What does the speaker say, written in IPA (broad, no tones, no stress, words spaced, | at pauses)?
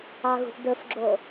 ɑɣṳʔdɵfɡ͡ǁo